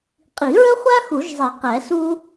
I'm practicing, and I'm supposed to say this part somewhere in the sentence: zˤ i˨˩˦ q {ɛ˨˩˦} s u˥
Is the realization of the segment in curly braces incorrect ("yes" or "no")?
no